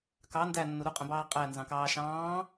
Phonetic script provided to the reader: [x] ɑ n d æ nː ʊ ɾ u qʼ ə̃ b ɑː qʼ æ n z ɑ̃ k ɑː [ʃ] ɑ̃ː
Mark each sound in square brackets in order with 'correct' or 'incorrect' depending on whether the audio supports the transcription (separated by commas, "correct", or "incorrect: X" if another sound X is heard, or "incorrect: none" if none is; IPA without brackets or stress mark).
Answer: incorrect: k, correct